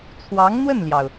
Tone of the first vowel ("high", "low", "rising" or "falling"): rising